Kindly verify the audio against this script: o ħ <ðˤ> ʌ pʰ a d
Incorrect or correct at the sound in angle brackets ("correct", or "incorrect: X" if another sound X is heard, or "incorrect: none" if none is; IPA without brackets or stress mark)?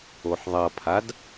correct